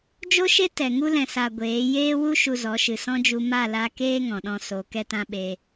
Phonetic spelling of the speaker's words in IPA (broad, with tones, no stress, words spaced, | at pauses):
d͡ʒo˦ʃe˦ tɛ˨ ŋu˦lɛ̃˨sa˨ ɡʷeː˨˦ jeː˦wu˦ ʃu˧zɔ˨˦ʃɨ˨ sɔ̃˦d͡ʒu˧ ma˦˨la˧keː˦ ŋɔ̃˨ɗɔ̃˧so˨˦ kɛ˦tã˦ɓe˧